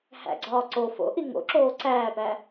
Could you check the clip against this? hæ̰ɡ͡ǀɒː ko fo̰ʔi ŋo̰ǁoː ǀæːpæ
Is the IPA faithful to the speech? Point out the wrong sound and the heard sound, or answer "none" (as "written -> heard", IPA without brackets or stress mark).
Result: k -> ǀ